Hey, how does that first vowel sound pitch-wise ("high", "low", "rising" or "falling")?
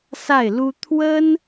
falling